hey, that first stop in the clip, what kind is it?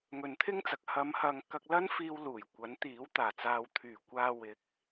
aspirated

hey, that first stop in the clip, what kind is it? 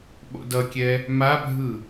implosive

